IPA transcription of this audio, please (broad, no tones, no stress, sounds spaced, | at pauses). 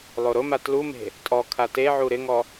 lˠ o ɾ ʊ m a t l u m e̤ | tʼ ɔ kʰ a t e ʕ u ɾ ɪ ŋ ɔ